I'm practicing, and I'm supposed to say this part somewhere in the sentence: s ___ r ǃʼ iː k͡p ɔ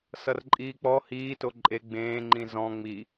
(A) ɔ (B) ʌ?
B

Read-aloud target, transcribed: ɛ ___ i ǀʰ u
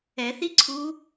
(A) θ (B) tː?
A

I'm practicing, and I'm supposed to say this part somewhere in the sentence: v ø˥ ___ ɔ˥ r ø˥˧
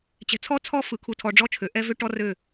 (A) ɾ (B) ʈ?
B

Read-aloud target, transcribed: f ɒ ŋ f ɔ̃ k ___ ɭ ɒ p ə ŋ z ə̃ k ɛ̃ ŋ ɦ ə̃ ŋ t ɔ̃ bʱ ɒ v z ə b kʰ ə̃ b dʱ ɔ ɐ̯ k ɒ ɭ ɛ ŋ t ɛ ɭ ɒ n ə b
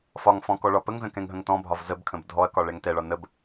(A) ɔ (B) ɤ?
A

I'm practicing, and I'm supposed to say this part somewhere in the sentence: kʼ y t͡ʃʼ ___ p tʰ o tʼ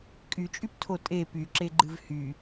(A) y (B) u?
A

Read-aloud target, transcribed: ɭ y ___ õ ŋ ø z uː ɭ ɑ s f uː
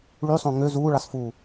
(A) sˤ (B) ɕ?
A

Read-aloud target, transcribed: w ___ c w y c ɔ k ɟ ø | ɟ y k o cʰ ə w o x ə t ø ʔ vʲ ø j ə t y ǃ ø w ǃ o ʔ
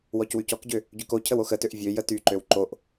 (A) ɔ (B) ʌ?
A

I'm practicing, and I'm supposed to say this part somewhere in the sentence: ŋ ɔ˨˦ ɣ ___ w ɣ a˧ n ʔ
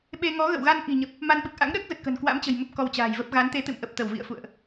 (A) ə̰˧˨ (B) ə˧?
A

